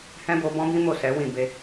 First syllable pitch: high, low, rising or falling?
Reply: high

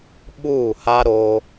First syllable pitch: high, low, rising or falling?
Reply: falling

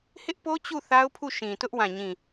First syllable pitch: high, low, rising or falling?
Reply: high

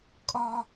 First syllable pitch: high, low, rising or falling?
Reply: high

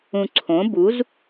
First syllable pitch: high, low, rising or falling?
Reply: low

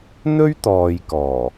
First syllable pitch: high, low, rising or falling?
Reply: high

